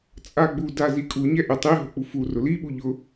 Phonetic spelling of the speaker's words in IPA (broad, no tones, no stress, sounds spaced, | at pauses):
t͡sʼ a ɡ͡b u d a z i kʼ u ɲ ɛ ʔ ɪ tˤ i ɦ o k͡p u f u r ʊ l i ɓ u ʎ ʊ